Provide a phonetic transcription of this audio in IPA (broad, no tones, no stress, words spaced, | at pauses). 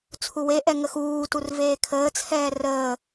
t͡sʰuweʔɛ ŋəxuːtur veːkʰəːt͡sʰɛː rəː